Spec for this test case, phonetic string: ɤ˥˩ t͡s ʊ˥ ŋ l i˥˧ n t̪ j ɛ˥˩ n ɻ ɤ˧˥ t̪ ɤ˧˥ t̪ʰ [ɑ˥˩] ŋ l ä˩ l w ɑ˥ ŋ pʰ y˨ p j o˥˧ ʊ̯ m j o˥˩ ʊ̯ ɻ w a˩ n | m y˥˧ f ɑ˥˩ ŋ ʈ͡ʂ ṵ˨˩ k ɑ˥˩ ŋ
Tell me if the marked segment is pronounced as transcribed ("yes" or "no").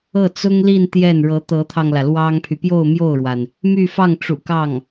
no